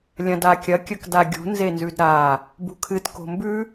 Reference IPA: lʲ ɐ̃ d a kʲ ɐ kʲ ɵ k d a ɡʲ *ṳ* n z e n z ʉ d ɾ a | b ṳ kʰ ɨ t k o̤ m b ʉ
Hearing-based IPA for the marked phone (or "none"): ṳ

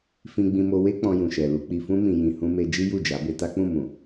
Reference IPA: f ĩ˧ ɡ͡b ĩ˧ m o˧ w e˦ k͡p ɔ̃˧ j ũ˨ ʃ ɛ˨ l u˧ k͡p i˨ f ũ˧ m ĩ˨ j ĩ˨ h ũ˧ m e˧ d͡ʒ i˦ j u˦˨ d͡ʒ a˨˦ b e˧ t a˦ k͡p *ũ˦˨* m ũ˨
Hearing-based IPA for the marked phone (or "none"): ũ˦˨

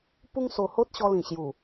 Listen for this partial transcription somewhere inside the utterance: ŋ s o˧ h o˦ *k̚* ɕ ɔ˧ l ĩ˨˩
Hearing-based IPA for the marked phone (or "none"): t̚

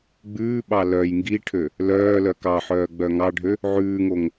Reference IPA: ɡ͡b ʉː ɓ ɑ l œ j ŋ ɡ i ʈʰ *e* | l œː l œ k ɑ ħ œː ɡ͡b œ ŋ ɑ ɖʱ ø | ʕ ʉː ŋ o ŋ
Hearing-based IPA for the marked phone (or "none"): ø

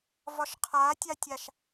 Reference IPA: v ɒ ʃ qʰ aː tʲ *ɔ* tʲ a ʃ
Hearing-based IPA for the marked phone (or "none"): ɑ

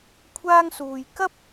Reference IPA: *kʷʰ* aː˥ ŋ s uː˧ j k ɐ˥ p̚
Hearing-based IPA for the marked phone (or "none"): kʷʰ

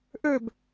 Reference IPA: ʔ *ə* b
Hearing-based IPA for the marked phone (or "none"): ø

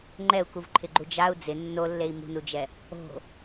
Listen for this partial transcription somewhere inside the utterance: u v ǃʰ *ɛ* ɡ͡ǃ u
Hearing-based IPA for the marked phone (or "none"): ɪ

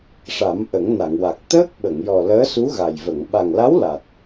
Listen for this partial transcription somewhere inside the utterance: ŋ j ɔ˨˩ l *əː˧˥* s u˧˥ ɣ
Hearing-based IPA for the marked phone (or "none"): əː˧˥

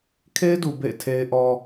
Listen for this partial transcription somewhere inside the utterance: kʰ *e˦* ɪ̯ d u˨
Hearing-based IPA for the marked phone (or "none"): e˦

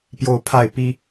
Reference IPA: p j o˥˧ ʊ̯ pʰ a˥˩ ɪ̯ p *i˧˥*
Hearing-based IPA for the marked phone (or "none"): i˥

